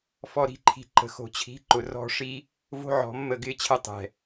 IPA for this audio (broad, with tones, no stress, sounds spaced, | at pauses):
f ɔ˨ ɾ i̤˧ ǃʰ i̤˨ ǃ ə̤˨ x o̤˨ t͡ɕʰ i̤˨˦ ǃ ʊ˨ r ɔ̤˦˨ ʂ i˦ | v o̤˦ ʕ ɔ̤˨˦ mː ə˦˨ ɡ ɪː˦ t͡ɕʰ ə˦˨ tˤ ɛ̤˨